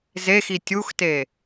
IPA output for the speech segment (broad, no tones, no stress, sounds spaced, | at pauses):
z e x i tʲ u x t e